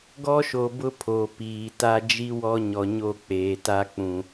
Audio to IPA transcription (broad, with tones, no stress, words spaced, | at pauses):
ɡɔ˦ʃo˨bʊ˦ pʰo˨piː˨ta˦ d͡ʒi˦ wɔ˦ɲɔ˨ɲo˦˨ k͡peː˨ta˦k͡pũ˨